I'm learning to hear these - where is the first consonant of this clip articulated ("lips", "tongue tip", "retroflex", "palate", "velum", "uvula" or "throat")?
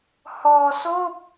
throat